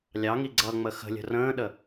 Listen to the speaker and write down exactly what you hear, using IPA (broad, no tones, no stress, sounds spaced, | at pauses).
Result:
lʲ ɑ ŋ i ɡ͡ǀ ʌ ŋ͡m ə x ə̤ lʲ ə̤ r ə̃ː ɗ ə